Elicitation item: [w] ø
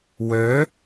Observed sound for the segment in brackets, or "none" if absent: w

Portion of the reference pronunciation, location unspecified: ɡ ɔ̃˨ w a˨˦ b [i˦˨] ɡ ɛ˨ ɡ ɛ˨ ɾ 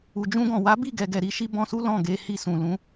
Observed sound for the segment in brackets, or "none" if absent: i˦˨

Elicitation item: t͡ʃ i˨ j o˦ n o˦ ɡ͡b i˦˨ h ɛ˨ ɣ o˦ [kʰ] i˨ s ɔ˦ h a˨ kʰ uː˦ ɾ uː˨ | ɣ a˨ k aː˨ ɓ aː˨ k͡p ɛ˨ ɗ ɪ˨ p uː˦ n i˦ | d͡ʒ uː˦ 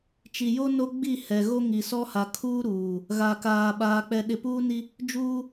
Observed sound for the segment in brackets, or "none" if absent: ŋ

